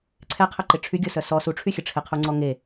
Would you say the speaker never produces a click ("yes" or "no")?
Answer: no